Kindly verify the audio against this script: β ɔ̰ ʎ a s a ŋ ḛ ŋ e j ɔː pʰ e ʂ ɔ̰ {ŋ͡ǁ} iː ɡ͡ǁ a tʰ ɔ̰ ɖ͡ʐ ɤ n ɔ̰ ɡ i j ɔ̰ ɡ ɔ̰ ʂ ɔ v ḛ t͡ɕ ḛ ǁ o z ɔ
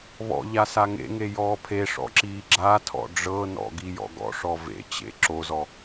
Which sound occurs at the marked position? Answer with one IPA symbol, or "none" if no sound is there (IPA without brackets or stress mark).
ǁ